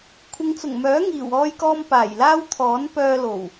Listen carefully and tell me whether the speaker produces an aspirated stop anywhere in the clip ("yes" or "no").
yes